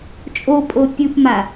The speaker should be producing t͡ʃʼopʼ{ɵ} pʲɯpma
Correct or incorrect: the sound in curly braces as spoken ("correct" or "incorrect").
incorrect